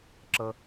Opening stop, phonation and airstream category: click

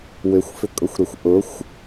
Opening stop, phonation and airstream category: ejective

